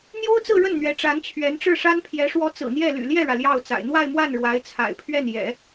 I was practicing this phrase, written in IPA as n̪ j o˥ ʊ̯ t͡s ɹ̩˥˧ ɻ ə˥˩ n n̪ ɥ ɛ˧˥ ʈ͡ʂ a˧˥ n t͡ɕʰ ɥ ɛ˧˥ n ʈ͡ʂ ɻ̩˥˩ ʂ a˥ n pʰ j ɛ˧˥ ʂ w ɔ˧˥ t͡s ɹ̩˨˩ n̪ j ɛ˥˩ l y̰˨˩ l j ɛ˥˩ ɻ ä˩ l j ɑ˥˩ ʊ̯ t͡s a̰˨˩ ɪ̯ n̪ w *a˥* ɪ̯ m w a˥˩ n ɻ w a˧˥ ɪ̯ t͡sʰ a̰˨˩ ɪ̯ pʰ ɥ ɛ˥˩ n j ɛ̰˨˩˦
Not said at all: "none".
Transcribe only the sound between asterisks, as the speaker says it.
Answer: a˥˧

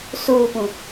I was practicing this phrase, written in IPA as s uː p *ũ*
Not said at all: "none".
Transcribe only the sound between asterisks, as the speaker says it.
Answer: ũ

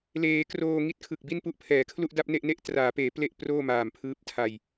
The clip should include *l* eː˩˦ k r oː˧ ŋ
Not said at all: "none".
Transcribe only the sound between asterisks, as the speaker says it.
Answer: l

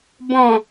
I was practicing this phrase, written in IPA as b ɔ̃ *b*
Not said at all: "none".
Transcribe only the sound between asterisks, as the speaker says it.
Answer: none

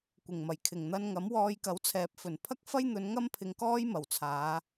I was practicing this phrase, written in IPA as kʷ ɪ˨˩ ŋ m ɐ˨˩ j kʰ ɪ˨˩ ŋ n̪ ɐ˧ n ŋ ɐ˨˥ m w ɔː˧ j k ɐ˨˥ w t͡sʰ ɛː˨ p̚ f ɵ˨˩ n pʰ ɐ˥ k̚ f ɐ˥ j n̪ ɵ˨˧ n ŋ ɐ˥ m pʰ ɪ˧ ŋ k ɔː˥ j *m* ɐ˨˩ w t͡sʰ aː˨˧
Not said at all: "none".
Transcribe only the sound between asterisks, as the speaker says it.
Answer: m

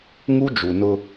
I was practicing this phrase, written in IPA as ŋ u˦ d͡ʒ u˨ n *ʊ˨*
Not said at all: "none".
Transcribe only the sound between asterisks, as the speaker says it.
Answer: ʊ˦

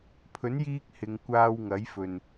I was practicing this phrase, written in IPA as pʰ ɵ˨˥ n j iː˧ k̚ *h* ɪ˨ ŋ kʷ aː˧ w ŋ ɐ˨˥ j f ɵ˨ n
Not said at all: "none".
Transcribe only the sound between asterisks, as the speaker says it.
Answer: h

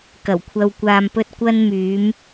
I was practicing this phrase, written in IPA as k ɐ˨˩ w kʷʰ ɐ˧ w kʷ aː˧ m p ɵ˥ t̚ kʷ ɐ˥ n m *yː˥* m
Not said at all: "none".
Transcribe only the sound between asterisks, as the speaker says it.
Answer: yː˨˥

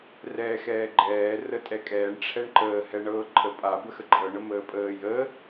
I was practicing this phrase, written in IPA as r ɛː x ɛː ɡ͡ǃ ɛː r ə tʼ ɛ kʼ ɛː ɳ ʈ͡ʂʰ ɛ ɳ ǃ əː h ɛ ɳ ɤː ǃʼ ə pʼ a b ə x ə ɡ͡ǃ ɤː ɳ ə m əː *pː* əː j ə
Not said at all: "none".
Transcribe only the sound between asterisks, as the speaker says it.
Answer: pʼ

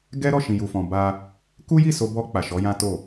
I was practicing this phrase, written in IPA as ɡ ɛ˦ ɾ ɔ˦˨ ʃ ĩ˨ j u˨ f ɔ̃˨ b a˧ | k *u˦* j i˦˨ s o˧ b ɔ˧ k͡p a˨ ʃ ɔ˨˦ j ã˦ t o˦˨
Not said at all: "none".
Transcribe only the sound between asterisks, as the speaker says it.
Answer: u˦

